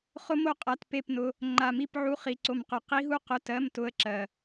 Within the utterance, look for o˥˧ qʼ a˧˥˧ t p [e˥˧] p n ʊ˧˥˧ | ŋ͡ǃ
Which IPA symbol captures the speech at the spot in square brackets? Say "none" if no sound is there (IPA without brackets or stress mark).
e˥˧